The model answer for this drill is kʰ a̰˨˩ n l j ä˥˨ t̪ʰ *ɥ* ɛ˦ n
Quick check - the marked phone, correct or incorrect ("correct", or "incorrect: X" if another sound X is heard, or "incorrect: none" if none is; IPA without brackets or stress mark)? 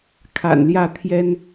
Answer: incorrect: j